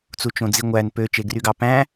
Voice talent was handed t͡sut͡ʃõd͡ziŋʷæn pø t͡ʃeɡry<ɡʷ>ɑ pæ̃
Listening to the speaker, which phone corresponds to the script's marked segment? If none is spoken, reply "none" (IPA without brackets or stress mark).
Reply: ɡ